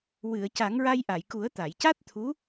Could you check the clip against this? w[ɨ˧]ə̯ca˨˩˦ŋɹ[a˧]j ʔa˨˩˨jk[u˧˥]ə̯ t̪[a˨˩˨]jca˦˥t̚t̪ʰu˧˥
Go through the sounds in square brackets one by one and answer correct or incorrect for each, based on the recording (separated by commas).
incorrect, correct, incorrect, correct